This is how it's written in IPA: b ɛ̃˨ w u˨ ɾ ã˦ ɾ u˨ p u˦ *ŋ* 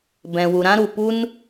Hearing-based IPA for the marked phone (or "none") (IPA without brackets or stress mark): n